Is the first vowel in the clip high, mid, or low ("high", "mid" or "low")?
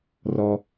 mid